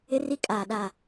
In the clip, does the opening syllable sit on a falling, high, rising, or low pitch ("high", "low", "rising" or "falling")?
high